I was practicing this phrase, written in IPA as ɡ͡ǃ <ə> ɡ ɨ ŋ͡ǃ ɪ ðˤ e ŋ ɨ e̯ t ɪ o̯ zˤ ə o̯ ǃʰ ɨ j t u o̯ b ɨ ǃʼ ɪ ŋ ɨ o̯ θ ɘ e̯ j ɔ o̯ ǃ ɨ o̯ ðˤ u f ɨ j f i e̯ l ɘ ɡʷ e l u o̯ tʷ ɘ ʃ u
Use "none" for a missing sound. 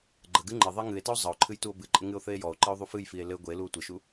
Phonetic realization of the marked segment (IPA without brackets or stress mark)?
ə